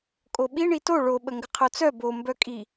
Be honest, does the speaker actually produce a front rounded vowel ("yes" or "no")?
yes